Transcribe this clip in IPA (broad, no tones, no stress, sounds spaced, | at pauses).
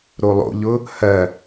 ɾ o lˠ o̰ ʎ ʊ | h ɜ